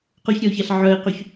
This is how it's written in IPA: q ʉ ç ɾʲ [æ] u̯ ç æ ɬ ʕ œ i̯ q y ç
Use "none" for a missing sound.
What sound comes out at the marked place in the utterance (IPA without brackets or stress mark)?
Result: œ